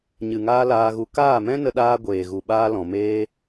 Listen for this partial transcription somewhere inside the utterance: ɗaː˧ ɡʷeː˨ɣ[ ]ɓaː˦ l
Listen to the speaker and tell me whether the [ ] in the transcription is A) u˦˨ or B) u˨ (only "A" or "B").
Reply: B